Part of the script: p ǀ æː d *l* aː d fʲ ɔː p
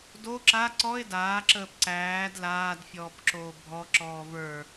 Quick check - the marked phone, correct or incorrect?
correct